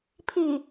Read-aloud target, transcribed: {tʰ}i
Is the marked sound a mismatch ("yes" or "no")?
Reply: yes